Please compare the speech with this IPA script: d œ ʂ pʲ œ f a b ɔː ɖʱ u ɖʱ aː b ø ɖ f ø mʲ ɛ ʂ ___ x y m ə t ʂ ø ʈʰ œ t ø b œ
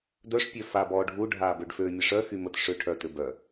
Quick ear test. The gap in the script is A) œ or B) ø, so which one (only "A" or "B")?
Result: A